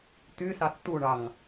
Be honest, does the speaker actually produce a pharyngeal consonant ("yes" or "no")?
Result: no